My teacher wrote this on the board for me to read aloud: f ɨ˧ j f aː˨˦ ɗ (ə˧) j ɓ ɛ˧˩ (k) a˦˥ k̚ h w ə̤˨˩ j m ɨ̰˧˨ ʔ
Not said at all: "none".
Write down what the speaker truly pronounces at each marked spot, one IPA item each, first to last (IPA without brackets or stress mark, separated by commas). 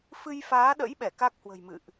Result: ə̰˧˥, k